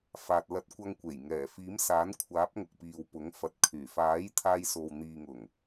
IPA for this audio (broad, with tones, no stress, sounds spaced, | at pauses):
f aː˨ t̚ l ɐ˧ t̚ kʷ ɐ˧ ŋ kʷ e˨˩ j ŋ ɛː˨˩ f iː˨˥ m s aː˨˥ n kʷʰ aː˨˥ p̚ ŋ ʊ˨ k̚ p iː˨ w p ʊ˨˥ ŋ f ɐ˨ t̚ kʰ yː˨˩ f aː˨˥ j t̪ʰ aː˧ j s o˨ w n̪ iː˨ ŋ ʊ˨˩ ŋ